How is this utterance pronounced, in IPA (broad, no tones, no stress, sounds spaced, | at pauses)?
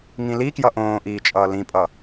ŋ ĩ l i k j ʌ ʔ õː ʔ iː t͡ʃʼ ʌː l ĩ pʼ ʌ